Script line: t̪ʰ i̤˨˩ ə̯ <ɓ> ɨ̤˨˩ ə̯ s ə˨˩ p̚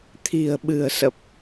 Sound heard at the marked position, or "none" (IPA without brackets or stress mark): ɓ